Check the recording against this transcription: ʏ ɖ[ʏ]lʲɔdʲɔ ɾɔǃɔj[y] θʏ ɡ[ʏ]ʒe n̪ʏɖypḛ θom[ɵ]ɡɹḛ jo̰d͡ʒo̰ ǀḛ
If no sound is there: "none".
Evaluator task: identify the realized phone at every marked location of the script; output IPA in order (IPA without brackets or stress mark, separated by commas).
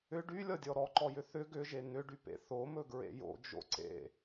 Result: y, ʏ, ʏ, ɵ